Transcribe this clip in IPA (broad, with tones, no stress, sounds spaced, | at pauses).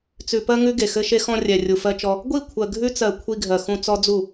t͡s ʉ˨ p ɜ˧ ŋ ʉ˦ ɡ e˨ x ɘ˦ ʃ e˦ x ɔ̃˧ rʲ ɛ˨ rʲ u˨ f ɜ˧ t͡ʃ ɔ˧ | ɡʷ i˦˨ kʷʰ ɜ˨ ɡʱ ʉ˧ t͡s ɜ˨ kʷʰ i˧ ɡʱ ɜ˨ x ũ˧ t͡s ɔ˦ d͡z u˦˨